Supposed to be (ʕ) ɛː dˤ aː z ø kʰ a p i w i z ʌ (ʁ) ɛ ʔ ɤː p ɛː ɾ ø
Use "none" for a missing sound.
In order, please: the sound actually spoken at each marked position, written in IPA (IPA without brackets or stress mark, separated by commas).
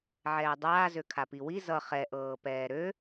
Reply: ʕ, χ